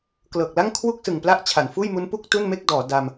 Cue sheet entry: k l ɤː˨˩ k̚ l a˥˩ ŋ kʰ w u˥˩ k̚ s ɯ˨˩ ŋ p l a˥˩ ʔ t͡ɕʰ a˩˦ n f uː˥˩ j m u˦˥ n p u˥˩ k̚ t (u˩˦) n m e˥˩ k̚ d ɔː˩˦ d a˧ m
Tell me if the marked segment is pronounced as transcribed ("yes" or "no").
no